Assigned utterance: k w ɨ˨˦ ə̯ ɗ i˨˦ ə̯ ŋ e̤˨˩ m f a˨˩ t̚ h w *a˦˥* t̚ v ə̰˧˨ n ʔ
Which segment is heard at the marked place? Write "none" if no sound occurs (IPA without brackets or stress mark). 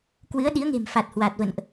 a˨˩